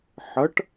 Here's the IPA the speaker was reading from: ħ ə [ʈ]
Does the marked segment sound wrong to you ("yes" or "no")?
no